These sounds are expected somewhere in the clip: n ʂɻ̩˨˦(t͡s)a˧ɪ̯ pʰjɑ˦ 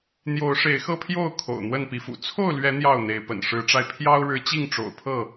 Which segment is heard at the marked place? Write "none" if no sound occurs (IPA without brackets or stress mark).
ʈ͡ʂ